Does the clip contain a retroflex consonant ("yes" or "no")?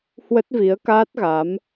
no